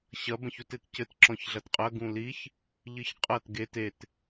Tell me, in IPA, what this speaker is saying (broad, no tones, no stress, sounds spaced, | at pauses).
ɕ ɐ b ɐ̃ ç u t e t c ɘ t ǁ ɔ̃ ç ɮ ɐ t qʼ ɐ ɡ ũ l i ç | ʎ ɨ ç qʼ ɐ t ɡ e t e t